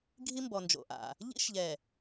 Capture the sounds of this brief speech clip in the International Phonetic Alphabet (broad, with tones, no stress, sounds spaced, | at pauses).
ɡʱ i˦ m b ɔ˨ n d͡ʒ o̰˨ ʔ a̰˨ | ʎ ḭ˦ ʃ ʎ ɛ˨